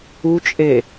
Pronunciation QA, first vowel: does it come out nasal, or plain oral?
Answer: oral